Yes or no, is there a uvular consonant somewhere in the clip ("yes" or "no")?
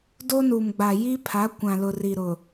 no